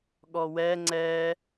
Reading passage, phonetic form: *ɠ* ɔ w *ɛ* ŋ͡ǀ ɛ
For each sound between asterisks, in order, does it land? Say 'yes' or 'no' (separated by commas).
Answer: yes, yes